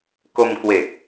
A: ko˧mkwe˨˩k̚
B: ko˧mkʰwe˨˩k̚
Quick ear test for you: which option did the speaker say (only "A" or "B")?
A